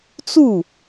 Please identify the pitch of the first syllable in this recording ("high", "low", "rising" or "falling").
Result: falling